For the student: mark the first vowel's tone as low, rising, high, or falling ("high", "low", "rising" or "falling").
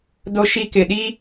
high